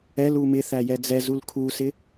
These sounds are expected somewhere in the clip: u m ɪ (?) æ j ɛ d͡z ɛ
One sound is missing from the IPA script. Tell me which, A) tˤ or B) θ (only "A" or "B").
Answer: B